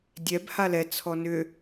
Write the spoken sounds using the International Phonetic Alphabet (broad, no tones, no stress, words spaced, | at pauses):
dʲɛb halɛ t͡sʰɔnʏ